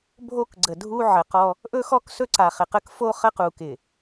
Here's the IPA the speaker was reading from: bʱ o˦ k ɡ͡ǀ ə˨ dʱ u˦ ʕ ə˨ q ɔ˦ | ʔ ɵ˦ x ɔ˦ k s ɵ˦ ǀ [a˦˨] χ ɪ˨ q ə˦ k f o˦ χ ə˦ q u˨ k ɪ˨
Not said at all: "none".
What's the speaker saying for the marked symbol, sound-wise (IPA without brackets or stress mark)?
a˨